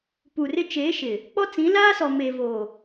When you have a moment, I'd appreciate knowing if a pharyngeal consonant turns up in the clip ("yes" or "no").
no